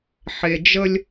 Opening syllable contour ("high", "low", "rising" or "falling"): low